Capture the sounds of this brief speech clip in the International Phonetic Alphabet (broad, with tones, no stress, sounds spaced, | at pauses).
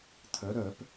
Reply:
t̪ʰ œ˩˧ ɾ œ˧˩˧ p